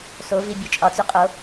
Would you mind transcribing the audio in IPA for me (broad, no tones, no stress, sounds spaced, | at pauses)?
s o v i bʲ o t͡ʃʼ ɒ t͡s ʉ qʼ o